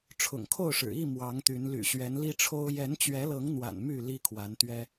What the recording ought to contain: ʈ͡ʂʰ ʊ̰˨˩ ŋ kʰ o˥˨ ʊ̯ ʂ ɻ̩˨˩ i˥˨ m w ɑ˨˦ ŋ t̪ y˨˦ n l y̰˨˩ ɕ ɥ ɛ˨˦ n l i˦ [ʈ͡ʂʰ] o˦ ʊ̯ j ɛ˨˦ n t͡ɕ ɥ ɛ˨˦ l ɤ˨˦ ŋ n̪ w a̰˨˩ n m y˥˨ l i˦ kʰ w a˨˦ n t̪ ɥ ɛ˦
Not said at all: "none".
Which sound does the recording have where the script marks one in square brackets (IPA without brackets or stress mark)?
ʈ͡ʂʰ